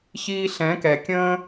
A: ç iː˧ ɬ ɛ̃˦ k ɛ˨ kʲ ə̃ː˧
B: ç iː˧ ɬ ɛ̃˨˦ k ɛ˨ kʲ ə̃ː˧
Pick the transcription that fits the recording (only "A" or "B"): B